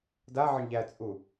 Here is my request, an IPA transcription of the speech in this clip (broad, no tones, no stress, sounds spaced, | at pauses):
d a ʕ ə ɳ ʎ æ t͡sʼ u